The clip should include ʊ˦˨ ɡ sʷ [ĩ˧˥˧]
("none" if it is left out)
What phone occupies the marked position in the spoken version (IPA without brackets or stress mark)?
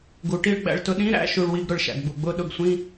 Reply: ĩ˧˥˧